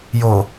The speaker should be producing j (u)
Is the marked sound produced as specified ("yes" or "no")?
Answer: no